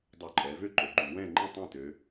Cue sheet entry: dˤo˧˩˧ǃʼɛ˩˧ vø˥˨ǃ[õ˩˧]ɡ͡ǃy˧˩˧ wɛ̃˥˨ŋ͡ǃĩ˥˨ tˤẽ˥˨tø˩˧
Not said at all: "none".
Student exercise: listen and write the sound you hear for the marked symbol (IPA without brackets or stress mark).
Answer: o˩˧